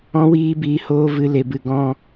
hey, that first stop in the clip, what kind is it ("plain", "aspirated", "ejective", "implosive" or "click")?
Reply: plain